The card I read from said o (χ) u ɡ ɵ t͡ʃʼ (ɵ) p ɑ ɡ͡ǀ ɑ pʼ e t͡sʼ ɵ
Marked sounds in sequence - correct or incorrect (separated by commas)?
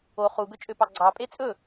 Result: correct, incorrect